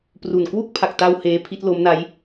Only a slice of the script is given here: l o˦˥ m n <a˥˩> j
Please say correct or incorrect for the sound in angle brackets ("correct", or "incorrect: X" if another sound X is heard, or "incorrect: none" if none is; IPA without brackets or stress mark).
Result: incorrect: a˦˥